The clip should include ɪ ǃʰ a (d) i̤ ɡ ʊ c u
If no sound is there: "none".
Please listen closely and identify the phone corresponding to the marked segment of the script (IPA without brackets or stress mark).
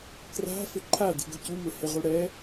d